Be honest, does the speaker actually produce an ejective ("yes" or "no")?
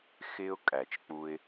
yes